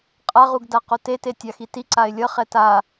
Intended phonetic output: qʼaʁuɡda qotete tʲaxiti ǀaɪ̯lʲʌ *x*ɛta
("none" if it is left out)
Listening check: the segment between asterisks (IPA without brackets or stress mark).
χ